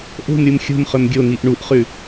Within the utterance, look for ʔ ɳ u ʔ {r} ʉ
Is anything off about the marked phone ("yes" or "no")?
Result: yes